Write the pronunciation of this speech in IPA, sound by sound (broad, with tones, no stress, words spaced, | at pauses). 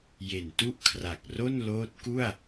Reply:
je˨˩ntu˥˩ʔkʰra˨˩k̚ro˥˩n loː˦˥t̚ku˥˩a̯